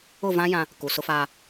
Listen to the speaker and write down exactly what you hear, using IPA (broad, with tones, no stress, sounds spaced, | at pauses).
ʊ˦˨ v ã˦ j ã˦ | k u˨ s ʊ˦ f aː˦